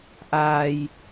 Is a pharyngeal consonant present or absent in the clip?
absent